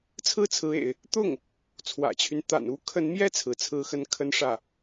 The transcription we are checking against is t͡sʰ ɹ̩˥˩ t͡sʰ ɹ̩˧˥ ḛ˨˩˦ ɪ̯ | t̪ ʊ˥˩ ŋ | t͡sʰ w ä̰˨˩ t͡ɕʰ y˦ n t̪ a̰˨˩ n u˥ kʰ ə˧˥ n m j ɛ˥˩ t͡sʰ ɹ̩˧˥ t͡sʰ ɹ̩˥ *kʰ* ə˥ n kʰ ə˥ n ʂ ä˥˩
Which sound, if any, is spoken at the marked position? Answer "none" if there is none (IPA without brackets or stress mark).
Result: x